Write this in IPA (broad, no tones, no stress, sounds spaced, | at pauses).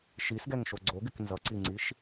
ʃ i s ɡ ɛ ŋ ʃ o ɡ͡ǀ o ɡ ɪ k n z ʌ ǀ i ŋ͡ǀ i ʃ